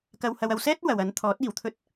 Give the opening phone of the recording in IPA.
k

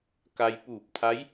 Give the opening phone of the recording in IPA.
k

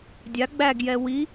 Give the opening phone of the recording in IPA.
dʲ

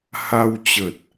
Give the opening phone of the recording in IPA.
h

